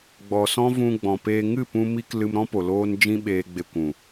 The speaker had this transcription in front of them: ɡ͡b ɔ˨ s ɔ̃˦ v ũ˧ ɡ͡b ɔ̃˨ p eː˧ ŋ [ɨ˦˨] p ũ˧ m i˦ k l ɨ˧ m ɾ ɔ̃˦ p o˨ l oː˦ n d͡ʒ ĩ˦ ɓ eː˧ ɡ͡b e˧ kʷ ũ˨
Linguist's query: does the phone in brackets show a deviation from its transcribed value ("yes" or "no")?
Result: no